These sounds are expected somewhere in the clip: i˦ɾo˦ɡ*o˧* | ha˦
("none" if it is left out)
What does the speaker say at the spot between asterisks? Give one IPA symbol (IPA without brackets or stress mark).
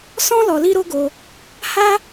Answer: o˧